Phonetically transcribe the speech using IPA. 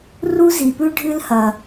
r u˥ z i˩ p ʉ˥ ɖʱ ɨ˥ l h ɐ˩

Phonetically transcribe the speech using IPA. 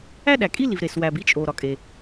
æ˥ ɗ æ˩ kʼ i˥ l i˩ v ɾ e˩ s w æ˩ b i˥ t͡ʃʼ o˩ ɾ ɒ˩ kʼ e˩

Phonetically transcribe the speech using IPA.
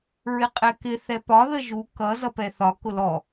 ɹ ɪ qʼ ɛ k ɪ θ ɛ p ɒ ð ə ʒ u k ʌ z ʌ p ɛ θ ɒ k ʊ l ɔ

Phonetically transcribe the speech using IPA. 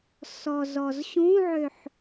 s ɔ z ɔ z ɕ ũ ʕ ø ħ

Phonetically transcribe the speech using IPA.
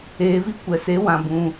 eː˨ v i˧ kʷ ɛ˨ s e˨˦ w ã˨ b ũ˧

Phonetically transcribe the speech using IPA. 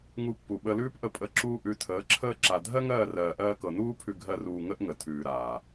ŋ u˧ pː u˨ ɓ ə˧ l ʉː˦ p ʔ ə˦˨ pʼ ə˦˨ ǁ uː˦ ʔ ʉ˨˦ tʰ əː˨˦ ǁʰ əː˦ ǁ a˧ dʱ ɜ˦ ŋ ɜː˦˨ r ɜː˨ ʔ ɜː˧ k ɤ˨ n uː˦ pʰ ʉ˧ ɡʱ ɜ˧ r uː˧ ŋ ə˦ ʔ ŋ ə˨ tʰ ʉː˨ ɾ aː˨

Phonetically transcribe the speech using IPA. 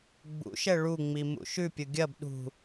ɡ͡b ṵ ʃ ɛ ɭ u ŋ͡m i m ṵ ʃ ʉ pʲ ʊ ɡʲ ɐ b ɗ ṳ

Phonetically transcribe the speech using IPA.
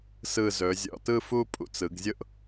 s ɯ˧˩ z ɵ˩˧ zʲ ɔ̰˧˩ t ɯ˥˧ f u˥˧ pʼ ṵ˧ t͡s ɯ˩˧ ɡ zʲ ʊ˥ ʔ

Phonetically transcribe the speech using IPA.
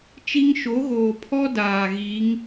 t͡ʃ i˦ ŋ ʃ o˨˦ ɣ oː˨ pʰ ɔ˦ d aː˨ ɣ iː˨˦ ŋ

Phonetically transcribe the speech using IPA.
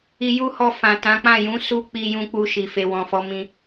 i˧ j u˦ h ɔ˧ f ã˨ t ã˨˦ k͡p ã˦˨ j ũ˨˦ s u˦ k͡p i˧ j ũ˧ k͡p u˧ ʃ i˨ f e˨ w ɔ̃˨ f ɔ˨˦ m ĩ˧

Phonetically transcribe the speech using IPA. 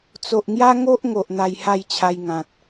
t͡s o˨ ʔ ŋ j a˦ ŋ o˦ ʔ ŋ o˨ ʔ n̪ a˧ j h a˥˧ j t͡ɕʰ a˧ j ŋ ã˨ t̚

